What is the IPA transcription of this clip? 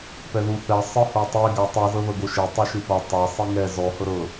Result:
p ɛ ð u θ ɛ sˤ ɯ h o tˤ e ɡ a tˤ ɯ z ɤ ð ɤ ɡ o ʃ e tˤ u ʃ ɯ p ɤ tˤ a sˤ i ŋ ɛ z ɔ h ɤ ɾ ɤ

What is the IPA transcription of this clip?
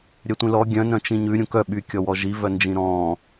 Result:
ɾʲ œ tʷ ĩ l ɔ ɡʲ œ̃ n œ̃ t͡ʃ ĩ ɲ ʉ ɾʲ ũ k œ ɓ y kʲ ɔ w ɔ ʒ i v œ n d͡ʒ ĩ ɾ ɔ̃ː

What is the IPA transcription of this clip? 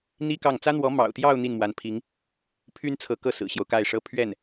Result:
n̪ i˥ k ɑ˥˩ ŋ t͡s ä˥ n̪ w ɔ˧˥ m ɑ̰˨˩ ʊ̯ t̪ j ɑ˥˧ ʊ̯ n̪ i˥˩ n m w a˧˥ n pʰ i˧˥ ŋ | pʰ y˥ n t͡sʰ ɤ˧˥ k ɤ˥˩ s ɹ̩˨˩ ɕ j o˦ ʊ̯ k a˥˩ ɪ̯ ʂ ɤ˥ pʰ ɥ ɛ˥˩ n

